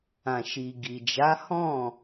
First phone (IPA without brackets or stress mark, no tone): ã